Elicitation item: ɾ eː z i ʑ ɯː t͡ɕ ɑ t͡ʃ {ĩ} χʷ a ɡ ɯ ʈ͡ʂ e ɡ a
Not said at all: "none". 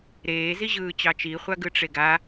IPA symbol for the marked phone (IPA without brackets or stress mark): i